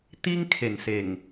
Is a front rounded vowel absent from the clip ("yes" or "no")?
yes